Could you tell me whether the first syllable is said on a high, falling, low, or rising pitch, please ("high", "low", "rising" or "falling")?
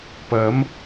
rising